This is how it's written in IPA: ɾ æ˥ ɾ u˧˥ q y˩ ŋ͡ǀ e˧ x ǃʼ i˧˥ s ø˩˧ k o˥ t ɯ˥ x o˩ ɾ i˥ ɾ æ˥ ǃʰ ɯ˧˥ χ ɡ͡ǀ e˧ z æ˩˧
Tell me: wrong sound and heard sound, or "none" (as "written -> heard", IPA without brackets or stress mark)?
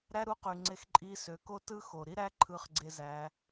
none